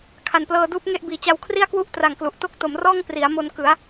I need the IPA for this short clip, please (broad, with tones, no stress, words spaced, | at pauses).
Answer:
kʰa˨˩nplɤː˧duː˦˥p̚ ŋe˥˩ʔbiː˨˩ t͡ɕa˧wkʰri˥˩a̯kwu˥˩ʔ tra˨˩ŋ klu˨˩ʔ to˥˩k̚to˩˦m rɔː˥˩ŋpri˩˦a̯mo˧n kɯ˩˦a̯